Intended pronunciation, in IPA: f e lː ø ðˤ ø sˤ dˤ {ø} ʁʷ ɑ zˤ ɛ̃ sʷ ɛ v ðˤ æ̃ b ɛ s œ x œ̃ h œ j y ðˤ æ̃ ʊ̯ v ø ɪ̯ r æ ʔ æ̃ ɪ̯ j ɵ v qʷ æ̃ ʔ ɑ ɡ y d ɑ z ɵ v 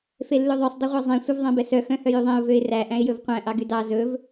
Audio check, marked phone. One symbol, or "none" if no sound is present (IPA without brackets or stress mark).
ɵ